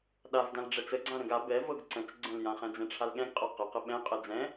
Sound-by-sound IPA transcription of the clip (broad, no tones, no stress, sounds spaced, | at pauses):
ɗ a v d ã l ɖ͡ʐ ɛ t͡s ə ɡ͡ǀ ã ɾ ə̃ ɡ a b ɛ v ɤ ɡ ǀ ə̃ t͡s ɡ͡ǀ ə̃ l j ã χ ɛ̃ d͡z ɛ̃ ʈ͡ʂʰ a l ɠ ɛ̃ ɡ qʼ ɤ q ə q ə ɓ ɛ̃ qʼ ɛ d͡z ɛ̃